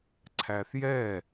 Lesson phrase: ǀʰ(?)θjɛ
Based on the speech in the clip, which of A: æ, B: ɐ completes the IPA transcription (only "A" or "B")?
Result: A